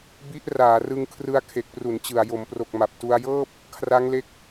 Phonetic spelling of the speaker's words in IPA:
b i˦˥ ʔ r aː˩˦ r ɯ˧ ŋ kʰ r ɯ˧ a̯ kʰ e˨˩ k̚ p r u˩˦ n t͡ɕ ɯ˨˩ a̯ j o˩˦ m p r o˨˩ k̚ m a˨˩ p̚ t u˧ a̯ j ɤː˥˩ p̚ | kʰ r a˦˥ ŋ l e˦˥ k̚

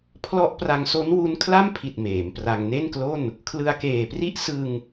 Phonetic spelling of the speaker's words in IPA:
pʰ l ɔ˦˥ ʔ p r a˧ ŋ s o˦˥ n w u˦˥ n kʰ l a˥˩ m pʰ i˨˩ t̚ m eː˩˦ m p r a˧ ŋ n e˥˩ n k l o˥˩ n | kʰ l ɯ˧ a̯ k eː˨˩ p r i˥˩ ʔ s ɯ˧ ŋ

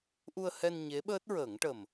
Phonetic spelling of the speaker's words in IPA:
ʔ u˧ ə̯ h ɛ˧ n ɲ e˧˥ ɓ əː˦˥ t̚ ɹ əː˨˩˦ ŋ ʈ ə˨˩ m

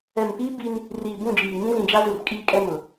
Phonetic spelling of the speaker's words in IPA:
ɛ˨ m p iː˦ b i˦ n | r iː˨ b ũ˦˨ d͡ʒ iː˨ ŋ ĩ˦ z ĩ˨ d͡ʒ a˦ z u˨ r kʼ iː˦ kʼ ɛ˦ m ʊ˨

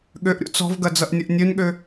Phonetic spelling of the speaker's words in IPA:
ɠ ø ʔ ɾʲ o̰ t͡s ɔ̤ v ɡ ɐ d͡z ʌ ʔ nʲ ə ʔ nʲ ø n ɠ ø

